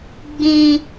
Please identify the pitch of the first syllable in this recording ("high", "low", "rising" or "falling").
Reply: high